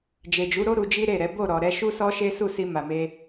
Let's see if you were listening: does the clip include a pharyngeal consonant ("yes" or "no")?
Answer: no